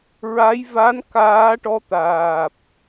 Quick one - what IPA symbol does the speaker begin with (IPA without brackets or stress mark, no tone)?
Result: ɹ